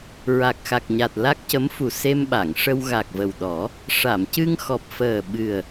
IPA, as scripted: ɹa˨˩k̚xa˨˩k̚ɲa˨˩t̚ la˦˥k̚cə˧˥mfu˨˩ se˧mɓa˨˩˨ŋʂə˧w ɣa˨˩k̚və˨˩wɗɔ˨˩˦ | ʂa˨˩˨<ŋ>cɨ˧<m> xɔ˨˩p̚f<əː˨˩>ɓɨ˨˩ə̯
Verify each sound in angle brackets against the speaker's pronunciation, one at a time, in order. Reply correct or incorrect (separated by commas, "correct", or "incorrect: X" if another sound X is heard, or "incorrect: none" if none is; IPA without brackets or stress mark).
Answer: incorrect: m, incorrect: ŋ, correct